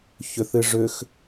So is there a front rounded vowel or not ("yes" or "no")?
yes